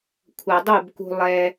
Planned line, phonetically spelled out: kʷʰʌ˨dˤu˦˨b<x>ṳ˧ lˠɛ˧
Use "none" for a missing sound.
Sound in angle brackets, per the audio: k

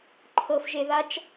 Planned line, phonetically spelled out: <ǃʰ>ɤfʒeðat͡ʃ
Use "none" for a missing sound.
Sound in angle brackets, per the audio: ǃʰ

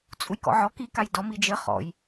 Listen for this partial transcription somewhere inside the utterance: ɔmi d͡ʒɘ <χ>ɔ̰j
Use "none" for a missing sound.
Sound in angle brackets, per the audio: χ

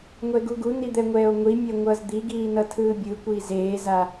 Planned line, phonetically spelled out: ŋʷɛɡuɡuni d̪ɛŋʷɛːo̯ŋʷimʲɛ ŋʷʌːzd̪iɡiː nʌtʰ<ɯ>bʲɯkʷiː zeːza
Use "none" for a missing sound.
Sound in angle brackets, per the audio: ɯː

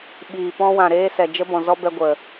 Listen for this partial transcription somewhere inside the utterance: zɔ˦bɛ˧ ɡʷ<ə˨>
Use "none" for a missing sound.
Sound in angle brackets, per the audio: ə˨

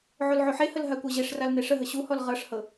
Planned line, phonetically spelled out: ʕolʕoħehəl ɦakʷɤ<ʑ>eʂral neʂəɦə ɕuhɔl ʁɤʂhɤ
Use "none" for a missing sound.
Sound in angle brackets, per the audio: ʑ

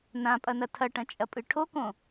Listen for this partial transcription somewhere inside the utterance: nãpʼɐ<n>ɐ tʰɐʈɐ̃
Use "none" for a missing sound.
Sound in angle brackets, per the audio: n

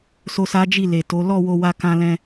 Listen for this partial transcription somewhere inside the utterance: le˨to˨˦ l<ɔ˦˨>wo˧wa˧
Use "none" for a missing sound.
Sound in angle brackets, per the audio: ɔ˦˨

